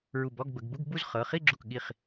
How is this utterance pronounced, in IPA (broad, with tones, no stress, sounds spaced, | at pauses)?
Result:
ɹ u˧˩ b ɔ˧˥˧ ɡ b ə˩˧ ɡ b u˧˥˧ ɡ b u˥˧ z χ ɤ˩˧˩ χ i˥˧ ɡ͡ǁ u˧˩ k ɠ i˧˩ χ